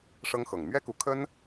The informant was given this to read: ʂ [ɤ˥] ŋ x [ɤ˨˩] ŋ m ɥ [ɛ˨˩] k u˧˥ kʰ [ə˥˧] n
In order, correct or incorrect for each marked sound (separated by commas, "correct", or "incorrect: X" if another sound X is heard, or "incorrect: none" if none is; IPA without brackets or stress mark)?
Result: correct, correct, incorrect: ɛ˥, incorrect: ə˥